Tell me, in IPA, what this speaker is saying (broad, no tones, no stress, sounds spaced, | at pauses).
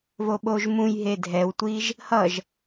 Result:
v o ɓ o ʒ m ũ j ɦ e dʱ ɛ w tʷ i ʒ | h ʌ ʒ